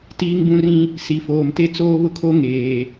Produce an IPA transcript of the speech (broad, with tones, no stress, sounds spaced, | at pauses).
t iː˦ ŋ b ũ˦ r ĩ˦ | s i˨ f oː˨ m t e˦ t͡s oː˦ β ʊ˦ kʰ o˦ ŋ eː˨